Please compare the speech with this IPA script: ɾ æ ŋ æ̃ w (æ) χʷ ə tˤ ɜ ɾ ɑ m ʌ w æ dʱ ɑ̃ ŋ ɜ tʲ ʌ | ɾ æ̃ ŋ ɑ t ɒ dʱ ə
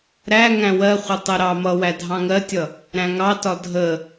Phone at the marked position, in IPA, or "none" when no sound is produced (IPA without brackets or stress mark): ɜ